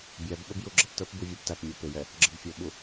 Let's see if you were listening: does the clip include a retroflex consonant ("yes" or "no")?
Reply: no